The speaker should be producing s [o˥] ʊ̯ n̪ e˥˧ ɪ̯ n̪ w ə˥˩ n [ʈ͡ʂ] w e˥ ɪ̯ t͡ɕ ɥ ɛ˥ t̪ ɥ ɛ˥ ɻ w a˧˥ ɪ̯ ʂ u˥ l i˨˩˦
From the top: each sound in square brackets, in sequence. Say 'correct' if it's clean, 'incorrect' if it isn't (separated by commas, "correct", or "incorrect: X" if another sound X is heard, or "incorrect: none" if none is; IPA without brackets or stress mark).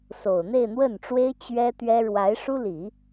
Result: incorrect: o˨˩, correct